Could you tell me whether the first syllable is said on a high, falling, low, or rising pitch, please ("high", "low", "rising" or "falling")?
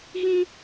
high